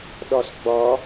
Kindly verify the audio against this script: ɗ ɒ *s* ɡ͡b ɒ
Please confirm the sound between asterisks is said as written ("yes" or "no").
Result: yes